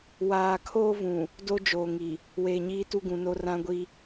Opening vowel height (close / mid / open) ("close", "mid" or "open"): open